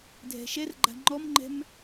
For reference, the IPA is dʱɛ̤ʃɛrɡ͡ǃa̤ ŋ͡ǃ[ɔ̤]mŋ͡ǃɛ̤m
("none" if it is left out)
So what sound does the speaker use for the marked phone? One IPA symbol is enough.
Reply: ɔ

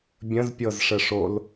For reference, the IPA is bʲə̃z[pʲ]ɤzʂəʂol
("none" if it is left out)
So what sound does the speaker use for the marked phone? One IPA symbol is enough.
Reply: pʲ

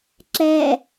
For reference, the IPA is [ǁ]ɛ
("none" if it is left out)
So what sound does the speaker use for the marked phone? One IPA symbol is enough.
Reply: ǁ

